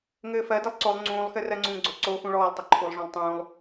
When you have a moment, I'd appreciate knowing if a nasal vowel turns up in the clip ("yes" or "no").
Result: yes